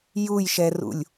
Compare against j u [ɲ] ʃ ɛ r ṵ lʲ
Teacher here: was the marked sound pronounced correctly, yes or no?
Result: no